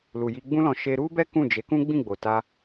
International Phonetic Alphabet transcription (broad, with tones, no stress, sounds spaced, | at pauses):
l u˨ j i˧ ɡ͡b ũ˦ l ɔ̃˧ ʃ e˧ ɾ u˦ b ɛ˦ k ũ˦˨ d͡ʒ e˨˦ k ũ˦ ɡ͡b ĩ˦˨ ɡ͡b o˨ t a˧